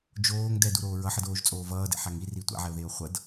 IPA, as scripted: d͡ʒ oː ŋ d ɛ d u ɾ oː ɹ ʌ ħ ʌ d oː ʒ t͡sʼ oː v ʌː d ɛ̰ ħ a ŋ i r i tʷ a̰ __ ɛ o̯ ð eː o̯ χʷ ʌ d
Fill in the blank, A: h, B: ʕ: B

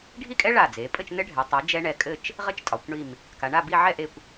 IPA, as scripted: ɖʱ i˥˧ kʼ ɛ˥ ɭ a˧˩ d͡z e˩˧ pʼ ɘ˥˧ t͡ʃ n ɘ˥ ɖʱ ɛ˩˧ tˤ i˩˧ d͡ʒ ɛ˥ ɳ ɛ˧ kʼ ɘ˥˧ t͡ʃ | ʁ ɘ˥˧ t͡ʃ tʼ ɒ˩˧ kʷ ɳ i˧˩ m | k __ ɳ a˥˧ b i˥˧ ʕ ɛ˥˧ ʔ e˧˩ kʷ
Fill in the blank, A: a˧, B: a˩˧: B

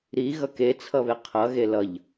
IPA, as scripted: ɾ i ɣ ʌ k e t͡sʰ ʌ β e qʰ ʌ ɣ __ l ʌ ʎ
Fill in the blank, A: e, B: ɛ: A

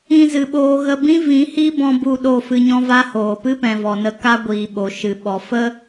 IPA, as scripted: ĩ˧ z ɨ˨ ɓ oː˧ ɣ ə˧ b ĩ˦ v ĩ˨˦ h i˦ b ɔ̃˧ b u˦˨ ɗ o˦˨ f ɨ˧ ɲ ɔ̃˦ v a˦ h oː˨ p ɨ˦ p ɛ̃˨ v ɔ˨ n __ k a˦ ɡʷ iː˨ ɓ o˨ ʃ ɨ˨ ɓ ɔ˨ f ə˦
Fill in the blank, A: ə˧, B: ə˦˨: A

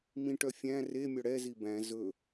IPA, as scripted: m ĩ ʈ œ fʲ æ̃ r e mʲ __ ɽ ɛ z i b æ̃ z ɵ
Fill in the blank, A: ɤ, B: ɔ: B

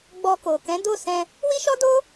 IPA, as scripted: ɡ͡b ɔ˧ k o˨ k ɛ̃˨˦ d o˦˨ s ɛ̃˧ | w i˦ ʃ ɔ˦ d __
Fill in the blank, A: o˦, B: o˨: A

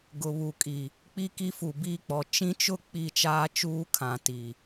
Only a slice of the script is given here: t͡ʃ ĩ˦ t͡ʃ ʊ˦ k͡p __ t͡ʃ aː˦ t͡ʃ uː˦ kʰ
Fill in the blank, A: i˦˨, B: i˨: A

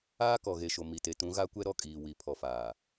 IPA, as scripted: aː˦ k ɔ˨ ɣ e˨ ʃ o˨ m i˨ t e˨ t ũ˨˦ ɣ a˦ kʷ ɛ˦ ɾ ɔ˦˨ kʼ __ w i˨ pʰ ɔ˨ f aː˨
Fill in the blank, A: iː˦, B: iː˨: B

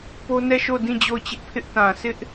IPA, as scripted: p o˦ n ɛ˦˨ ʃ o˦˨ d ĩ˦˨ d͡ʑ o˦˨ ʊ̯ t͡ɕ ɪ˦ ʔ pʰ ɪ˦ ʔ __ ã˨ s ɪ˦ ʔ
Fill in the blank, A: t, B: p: A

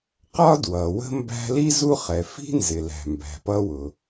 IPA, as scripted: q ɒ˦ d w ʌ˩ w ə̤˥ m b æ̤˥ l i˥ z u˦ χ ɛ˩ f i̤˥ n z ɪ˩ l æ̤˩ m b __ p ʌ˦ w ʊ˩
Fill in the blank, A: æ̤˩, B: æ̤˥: A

